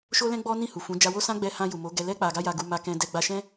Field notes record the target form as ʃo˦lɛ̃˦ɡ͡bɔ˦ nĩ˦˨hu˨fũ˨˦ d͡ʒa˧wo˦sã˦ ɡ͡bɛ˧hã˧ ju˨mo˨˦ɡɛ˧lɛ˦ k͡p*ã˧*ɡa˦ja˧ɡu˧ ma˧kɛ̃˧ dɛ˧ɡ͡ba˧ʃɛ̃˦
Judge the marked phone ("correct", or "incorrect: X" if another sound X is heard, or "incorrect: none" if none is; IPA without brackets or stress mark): incorrect: a˧